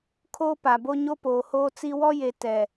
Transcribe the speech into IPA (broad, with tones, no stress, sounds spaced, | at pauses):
kʰ oː˦ p a˨ b o˦ ɲ o˦ p oː˨ h oː˦ t͡s i˦ w ɔ˦ j e˨ t ɛ˨